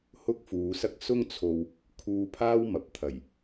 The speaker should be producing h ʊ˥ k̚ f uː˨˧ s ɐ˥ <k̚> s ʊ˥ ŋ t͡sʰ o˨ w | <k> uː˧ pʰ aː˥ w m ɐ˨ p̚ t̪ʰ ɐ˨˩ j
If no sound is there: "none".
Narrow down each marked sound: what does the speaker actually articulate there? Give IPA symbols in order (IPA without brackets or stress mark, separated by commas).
k̚, kʰ